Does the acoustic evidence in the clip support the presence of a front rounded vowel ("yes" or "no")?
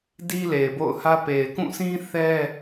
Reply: no